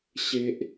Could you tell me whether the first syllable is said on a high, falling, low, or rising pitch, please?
low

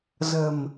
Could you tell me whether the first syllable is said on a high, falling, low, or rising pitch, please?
low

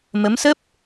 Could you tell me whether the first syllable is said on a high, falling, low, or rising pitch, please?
rising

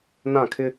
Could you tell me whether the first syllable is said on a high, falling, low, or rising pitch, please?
falling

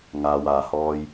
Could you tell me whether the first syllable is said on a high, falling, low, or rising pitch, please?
low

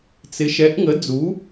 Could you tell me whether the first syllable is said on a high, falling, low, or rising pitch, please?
rising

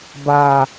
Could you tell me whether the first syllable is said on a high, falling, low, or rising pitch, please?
low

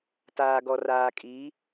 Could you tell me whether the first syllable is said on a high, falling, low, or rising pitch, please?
low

